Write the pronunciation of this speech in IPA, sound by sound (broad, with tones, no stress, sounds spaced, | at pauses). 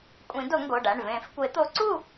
kʷʼ ĩ˨˩˦ d o˨˩˦ ŋ ɡ o˩˧˩ ɖ a˩˧˩ ɳ v ẽ˨˩˦ f kʷ e˨˩˦ t̪ o˨˦ ǀ u˥˨